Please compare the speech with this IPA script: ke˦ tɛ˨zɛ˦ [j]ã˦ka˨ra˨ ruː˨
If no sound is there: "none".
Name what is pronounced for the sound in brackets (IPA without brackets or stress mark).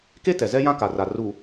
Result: j